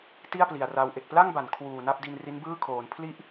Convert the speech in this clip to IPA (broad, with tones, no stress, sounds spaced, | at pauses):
t i˥˩ a̯ p l i˨˩ a̯ r a˧ w ʔ e˨˩ k̚ p l a˥˩ ŋ b a˩˦ n kʰ w uː˨˩ n a˥˩ p̚ d i˧ n r i˦˥ n b ɯː˥˩ kʰ oː˩˦ n pʰ l i˥˩ ʔ